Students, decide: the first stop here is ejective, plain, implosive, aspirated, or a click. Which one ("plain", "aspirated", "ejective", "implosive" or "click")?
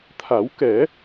aspirated